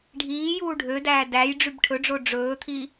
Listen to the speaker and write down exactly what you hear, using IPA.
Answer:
ɖʱiːjuː ɖʱødæː dæj ɖ͡ʐybʈʰɵɖ͡ʐo ɖ͡ʐɵːt̪ʰi

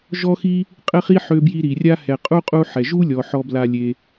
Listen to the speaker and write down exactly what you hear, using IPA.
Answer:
ʒɔ˥xi˥ | qʼɘ˥χi˥ ħø˦bji˦ɾi˩rʲa˥ hɛ˨qʼu˥qʼu˦ ħɛ˩ ʒu˥ lʲɔ˩ħɔ˨ bla˨ lʲe˩

